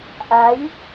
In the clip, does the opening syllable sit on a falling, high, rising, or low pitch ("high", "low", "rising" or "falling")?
rising